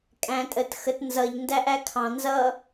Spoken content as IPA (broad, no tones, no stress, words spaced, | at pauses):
kʼæ̃ tʼət xət nzʌʎndæʔæ kʰɑ̃ nzʌ